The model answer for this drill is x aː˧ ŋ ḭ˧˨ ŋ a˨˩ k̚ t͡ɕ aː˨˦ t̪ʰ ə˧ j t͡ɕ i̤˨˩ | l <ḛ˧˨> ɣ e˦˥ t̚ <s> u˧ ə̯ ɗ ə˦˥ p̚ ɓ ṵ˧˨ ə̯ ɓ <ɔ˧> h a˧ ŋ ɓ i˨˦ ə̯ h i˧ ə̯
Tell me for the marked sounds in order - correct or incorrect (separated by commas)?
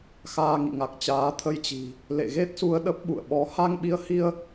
correct, correct, incorrect